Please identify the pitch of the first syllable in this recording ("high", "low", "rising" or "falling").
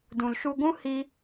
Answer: low